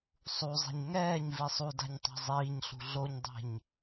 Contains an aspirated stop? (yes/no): no